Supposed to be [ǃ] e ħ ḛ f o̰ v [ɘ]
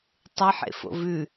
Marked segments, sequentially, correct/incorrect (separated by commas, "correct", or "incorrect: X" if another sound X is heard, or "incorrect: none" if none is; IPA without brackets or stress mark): incorrect: tˤ, incorrect: ʉ